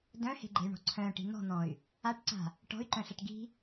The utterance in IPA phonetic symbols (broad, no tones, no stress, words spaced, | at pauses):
dœ̃he̤ɡ͡ǃe̤y̯ɳɔ̤ ǀʰœ̃ʈi̤ n̪ɔ̤n̪ɔ̃y̯ | aʈǀa̤ | ʈɔ̤y̯ǃœ̃ɬaʈ ɡi̤